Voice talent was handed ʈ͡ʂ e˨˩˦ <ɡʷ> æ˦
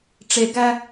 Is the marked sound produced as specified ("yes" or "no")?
no